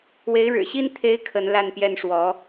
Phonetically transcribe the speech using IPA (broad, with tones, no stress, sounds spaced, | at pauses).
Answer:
w e˧˥ ɪ̯ ɻ ɻ̩˨˩ ɕ i˥ n t̪ʰ e˥ ɪ̯ kʰ ə˧˥ n l a˥˧ n p j ɛ˥˩ n ʂ w ɔ˧˥